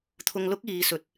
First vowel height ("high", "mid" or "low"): high